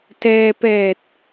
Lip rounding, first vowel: unrounded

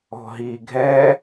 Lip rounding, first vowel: rounded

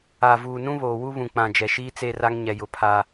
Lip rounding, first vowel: unrounded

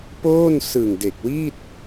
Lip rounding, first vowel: rounded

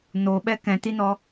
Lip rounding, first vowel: rounded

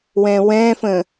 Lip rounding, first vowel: unrounded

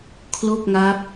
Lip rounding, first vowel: rounded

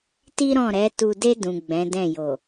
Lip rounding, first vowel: unrounded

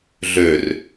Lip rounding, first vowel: rounded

